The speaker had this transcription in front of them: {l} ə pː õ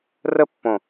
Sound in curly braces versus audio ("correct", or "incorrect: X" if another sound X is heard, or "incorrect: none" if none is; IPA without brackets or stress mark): incorrect: r